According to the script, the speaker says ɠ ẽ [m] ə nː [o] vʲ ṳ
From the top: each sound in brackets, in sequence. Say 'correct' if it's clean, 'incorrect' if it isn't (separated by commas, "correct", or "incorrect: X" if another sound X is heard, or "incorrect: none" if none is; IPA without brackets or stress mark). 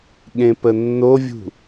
incorrect: p, correct